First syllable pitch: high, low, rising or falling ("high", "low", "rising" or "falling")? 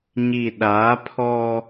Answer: low